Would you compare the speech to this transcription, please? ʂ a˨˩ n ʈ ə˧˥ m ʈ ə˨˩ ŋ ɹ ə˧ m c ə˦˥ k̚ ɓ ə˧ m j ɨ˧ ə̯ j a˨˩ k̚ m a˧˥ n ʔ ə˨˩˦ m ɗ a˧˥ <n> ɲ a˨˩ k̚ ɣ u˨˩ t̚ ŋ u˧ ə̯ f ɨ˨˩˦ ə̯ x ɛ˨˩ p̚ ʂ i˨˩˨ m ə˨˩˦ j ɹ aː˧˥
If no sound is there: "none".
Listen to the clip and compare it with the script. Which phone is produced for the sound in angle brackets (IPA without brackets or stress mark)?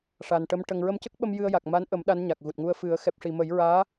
n